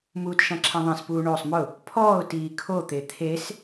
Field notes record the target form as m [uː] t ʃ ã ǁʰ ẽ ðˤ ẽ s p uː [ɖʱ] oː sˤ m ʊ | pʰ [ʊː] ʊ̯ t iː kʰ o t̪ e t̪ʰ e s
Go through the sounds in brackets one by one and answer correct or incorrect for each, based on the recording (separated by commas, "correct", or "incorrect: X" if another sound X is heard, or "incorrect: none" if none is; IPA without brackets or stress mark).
correct, incorrect: ɳ, incorrect: ɔː